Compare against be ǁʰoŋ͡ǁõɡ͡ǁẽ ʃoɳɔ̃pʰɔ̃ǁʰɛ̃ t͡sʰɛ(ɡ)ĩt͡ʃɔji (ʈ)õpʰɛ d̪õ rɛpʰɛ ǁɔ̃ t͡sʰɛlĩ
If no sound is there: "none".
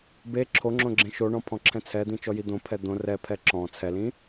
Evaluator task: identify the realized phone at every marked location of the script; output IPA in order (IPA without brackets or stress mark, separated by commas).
d̪, d̪